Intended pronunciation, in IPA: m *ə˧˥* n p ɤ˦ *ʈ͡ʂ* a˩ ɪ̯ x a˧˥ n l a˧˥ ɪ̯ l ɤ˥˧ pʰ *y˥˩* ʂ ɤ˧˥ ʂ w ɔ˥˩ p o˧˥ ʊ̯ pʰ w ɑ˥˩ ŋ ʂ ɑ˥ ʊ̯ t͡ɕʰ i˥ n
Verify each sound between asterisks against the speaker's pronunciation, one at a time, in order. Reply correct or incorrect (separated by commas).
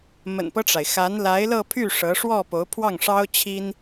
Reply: incorrect, correct, correct